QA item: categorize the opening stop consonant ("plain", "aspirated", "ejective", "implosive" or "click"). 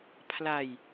aspirated